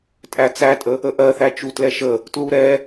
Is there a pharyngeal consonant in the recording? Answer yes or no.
no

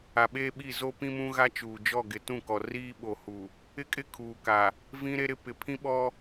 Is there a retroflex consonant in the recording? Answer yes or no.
no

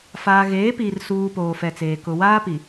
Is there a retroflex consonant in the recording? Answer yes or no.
no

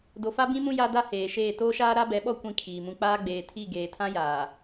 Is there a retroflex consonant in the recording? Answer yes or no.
no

